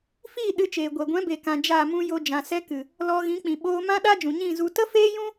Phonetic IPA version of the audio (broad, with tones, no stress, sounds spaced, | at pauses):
f iː˦˨ ɗ ɨ˧ t͡ʃ eː˨ ɡʷ ɛ˨ ɡʷ ɛ̃˨˦ b e˨ k ã˨ d͡ʒ a˦˨ m ũ˦ j o˧ d͡ʒ ã˨ s ɛ˧ k ɨ˨ | l ɔ˧ ɣ ĩ˨˦ k͡p ĩ˨ ɓ oː˧ m ã˦ ɗ aː˦ d͡ʒ ũ˨ ɲ ĩ˦˨ z u˧ t ə˦ f eː˦ j ũ˦